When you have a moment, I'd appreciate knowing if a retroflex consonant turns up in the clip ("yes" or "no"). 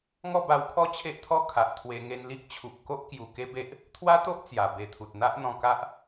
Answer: no